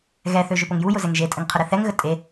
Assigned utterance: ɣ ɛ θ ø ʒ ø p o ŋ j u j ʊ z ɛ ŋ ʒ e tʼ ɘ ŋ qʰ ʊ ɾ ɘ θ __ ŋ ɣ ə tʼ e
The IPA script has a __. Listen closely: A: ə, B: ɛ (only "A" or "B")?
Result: B